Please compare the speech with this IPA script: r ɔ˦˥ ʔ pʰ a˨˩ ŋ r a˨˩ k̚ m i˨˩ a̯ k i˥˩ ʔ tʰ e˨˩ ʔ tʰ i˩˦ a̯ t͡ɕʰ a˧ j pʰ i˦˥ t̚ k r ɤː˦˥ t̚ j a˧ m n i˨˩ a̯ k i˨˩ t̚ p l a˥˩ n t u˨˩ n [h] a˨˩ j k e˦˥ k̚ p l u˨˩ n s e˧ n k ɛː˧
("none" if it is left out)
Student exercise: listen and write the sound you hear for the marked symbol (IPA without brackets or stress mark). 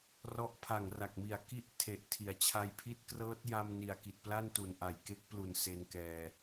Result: ʔ